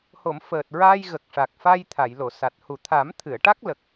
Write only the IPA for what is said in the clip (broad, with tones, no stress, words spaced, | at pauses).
ho˨˩˨m fəː˨˩t̚ɹaː˧j ɣə˨˩k̚ʂa˨˩k̚ fa˧j t̪ʰa˨˩˨jlo˨˩˨sa˨˩t̚ hu˨˩t̪ʰa˨˩˦mt̪ʰɨ˨˩˨ə̯ʈa˦˥k̚ lə˨˩k̚